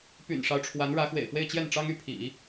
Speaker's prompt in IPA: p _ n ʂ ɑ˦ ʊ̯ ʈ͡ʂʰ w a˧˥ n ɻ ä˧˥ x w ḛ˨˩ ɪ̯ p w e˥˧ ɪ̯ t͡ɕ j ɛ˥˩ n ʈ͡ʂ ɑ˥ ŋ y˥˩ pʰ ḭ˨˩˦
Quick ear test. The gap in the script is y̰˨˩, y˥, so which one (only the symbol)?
y̰˨˩